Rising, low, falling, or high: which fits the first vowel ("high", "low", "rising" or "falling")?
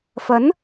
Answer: rising